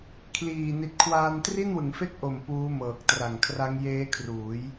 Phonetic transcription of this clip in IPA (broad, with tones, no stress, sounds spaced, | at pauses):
kʰ l iː˨˩ n i˨˩ t̚ kʰ w aː˧ n t r i˥˩ n w ɯ˩˦ ŋ f e˥˩ k̚ ʔ o˨˩ m p uː˦˥ m ɤː˨˩ k̚ t r a˨˩ ŋ kʰ r a˦˥ ŋ j eː˦˥ kʰ r uː˩˦ j